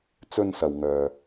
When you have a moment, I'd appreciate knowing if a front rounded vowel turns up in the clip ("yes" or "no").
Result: yes